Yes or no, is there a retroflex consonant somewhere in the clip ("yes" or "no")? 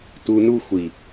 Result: no